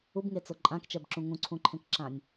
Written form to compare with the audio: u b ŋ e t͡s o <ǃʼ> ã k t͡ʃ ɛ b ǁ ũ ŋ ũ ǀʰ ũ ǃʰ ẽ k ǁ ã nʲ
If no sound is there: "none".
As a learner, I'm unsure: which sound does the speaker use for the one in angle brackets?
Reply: ǃʼ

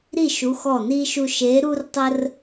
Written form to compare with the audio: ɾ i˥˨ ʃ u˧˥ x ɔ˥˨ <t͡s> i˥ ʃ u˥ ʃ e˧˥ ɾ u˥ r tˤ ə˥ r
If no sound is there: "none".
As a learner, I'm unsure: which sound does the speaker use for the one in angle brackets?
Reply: n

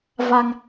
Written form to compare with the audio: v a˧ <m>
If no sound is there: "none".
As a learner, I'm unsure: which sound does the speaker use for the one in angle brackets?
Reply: ŋ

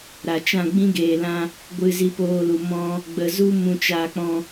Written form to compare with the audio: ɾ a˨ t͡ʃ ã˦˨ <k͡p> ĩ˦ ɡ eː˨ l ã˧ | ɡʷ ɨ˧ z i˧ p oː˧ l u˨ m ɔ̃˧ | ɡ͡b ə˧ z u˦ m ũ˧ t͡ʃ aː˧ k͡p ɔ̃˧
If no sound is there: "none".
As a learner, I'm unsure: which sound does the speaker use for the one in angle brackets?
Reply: ɡ͡b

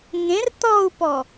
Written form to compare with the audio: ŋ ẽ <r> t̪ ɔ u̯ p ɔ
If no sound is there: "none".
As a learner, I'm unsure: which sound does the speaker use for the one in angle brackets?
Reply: r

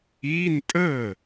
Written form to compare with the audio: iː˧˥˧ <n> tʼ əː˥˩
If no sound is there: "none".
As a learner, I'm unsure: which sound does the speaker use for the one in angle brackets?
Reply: n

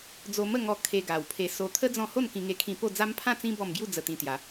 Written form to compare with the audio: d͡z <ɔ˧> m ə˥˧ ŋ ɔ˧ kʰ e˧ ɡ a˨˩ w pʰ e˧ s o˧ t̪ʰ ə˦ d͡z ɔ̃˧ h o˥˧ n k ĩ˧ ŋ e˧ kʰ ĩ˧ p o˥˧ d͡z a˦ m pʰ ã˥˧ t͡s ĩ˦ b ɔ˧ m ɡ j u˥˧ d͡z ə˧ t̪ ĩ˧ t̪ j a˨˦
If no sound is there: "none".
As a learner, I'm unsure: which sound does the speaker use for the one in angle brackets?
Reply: o˧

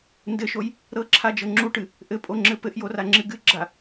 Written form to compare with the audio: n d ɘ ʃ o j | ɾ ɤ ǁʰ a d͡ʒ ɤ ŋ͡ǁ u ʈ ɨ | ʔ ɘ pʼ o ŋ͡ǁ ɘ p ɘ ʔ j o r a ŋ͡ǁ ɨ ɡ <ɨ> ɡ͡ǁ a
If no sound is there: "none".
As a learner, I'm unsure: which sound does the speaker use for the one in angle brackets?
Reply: ɨ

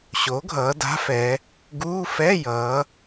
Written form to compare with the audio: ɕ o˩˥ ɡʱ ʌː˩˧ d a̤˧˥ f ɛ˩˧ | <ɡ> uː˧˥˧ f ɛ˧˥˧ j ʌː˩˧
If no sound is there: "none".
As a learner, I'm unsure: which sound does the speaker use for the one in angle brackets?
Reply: ɡ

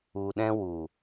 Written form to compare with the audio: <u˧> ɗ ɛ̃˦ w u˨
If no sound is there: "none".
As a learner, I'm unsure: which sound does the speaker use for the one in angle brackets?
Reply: u˧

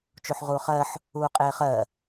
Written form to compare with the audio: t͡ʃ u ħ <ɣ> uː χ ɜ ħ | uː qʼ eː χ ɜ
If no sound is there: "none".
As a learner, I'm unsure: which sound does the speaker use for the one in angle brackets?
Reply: ʁ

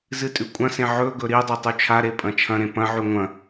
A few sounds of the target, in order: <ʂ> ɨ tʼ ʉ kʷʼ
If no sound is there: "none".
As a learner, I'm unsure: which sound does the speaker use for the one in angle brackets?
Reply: z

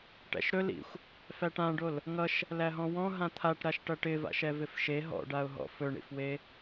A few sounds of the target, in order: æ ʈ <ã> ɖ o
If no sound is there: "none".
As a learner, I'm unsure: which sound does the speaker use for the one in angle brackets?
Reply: ã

